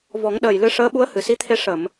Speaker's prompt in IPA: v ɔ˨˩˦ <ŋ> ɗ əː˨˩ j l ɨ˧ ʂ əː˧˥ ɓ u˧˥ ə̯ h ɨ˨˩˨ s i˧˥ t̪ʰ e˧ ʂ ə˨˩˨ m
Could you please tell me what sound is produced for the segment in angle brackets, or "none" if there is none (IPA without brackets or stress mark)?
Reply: ŋ